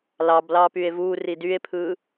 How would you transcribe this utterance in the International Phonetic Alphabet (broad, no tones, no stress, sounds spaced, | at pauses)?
l ɑ b l ɑː p y e̯ v uː r i d y e̯ pʰ ɯ